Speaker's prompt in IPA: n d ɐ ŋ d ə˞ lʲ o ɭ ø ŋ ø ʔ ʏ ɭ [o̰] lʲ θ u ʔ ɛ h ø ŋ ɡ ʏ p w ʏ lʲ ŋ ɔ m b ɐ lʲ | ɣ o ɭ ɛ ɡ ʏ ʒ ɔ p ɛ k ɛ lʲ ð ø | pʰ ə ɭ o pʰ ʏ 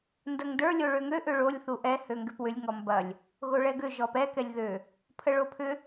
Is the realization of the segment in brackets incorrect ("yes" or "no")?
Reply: yes